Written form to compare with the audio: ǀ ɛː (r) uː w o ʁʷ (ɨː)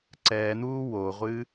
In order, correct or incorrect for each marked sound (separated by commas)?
incorrect, correct